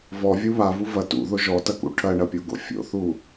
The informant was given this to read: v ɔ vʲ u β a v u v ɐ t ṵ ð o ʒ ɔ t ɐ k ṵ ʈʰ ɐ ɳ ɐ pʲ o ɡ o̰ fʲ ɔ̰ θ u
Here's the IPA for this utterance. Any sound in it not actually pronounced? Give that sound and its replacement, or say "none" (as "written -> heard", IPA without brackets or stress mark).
ɔ̰ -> o̰